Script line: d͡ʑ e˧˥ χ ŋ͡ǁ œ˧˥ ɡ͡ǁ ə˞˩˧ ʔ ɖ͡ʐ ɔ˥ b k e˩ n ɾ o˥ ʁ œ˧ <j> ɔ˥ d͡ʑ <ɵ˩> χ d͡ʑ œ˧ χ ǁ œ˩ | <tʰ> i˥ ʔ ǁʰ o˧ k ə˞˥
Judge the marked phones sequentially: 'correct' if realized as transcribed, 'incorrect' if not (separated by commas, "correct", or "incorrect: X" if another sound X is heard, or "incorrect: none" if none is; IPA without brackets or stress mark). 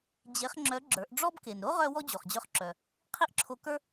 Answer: incorrect: w, incorrect: o˩, incorrect: qʰ